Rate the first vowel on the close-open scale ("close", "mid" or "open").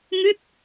close